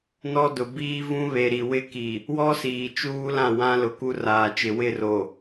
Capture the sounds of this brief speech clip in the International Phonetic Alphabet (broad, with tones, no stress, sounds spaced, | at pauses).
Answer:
n ɔ˦ d ʊ˨ b iː˦ v ũ˦ β e˨ ɾ i˨ w ɪ˦ k i˨ | w ɔ˦ s iː˨ t͡ʃ uː˦ l ã˦˨ w ã˦ l ʊ˨ k u˦ r aː˨ t͡ʃ ɪ˨ w ɪ˦˨ r o˨